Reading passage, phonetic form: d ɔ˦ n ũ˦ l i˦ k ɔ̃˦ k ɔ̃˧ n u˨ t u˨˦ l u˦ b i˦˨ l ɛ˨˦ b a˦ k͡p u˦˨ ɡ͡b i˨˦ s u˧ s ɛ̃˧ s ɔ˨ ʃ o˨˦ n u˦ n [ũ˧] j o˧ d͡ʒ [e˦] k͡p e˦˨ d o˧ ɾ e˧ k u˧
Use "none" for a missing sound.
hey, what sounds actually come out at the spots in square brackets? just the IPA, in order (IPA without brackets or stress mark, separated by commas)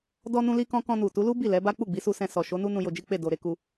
ũ˧, i˦